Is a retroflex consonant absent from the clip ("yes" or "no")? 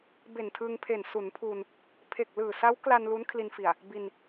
yes